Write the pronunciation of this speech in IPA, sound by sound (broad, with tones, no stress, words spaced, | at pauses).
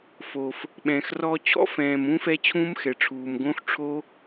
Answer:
fo˨˩f | ɓɛ̃ː˨˩xrɔː˦˥ t͡ɕʰɔ̰˦˥fɛ̃ː˨˩m ũ˦˥fɛ˦˥ t͡ɕʰũː˦˥mxɛ˨˩ʈ͡ʂʰuː˨˩m ɡõ˦˥xʈ͡ʂʰo˦˥